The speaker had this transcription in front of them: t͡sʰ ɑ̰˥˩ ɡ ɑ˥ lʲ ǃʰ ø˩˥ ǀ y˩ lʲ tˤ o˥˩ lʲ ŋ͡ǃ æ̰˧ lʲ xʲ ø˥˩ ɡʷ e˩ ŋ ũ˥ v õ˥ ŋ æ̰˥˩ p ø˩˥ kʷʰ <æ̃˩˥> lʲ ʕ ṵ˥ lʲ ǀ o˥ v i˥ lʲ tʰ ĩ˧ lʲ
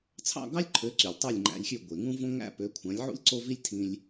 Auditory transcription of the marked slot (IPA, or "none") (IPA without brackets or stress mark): æ̃˩˥